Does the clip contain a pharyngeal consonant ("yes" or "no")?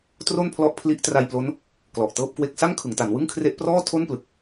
no